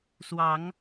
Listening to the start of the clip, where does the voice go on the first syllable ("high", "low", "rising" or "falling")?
rising